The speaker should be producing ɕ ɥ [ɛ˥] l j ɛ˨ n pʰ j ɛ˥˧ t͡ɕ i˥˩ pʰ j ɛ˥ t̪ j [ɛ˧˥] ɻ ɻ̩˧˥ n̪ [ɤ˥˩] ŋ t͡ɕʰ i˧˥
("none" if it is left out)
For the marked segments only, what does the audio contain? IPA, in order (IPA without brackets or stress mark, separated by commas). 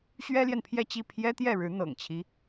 ɛ˥, ɛ˥˩, ɤ̰˨˩